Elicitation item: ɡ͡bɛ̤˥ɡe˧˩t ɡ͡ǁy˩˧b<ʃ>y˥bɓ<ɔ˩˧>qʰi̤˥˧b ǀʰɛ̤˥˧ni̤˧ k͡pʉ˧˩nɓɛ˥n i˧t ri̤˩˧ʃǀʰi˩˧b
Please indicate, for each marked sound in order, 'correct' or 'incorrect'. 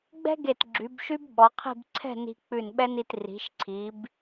correct, correct

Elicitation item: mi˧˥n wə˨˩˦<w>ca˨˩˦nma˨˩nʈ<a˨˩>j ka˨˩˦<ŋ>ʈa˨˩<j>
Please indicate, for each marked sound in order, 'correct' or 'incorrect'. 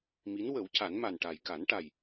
correct, correct, incorrect: n, correct

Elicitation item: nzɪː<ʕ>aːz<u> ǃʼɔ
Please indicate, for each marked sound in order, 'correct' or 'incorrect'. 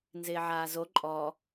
correct, incorrect: o

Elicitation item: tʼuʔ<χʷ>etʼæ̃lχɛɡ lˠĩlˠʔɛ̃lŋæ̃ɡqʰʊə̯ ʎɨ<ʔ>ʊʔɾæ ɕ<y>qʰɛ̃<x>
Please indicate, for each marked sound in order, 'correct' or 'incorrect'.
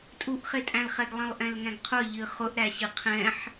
incorrect: χ, incorrect: χ, incorrect: ɨ, incorrect: ħ

